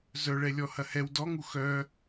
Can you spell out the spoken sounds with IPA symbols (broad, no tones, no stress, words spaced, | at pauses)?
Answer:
zœɭɛlʲɔ hɐhɛw dɔŋu xœ